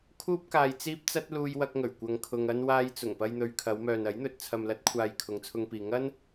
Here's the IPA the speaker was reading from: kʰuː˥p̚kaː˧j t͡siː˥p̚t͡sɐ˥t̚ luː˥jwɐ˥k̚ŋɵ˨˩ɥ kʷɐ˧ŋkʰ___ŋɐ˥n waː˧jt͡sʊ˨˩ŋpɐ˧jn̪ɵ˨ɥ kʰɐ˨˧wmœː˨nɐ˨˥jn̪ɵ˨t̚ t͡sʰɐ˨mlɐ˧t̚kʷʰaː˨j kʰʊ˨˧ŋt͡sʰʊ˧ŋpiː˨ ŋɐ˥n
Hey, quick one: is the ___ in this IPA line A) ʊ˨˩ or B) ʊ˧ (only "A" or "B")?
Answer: B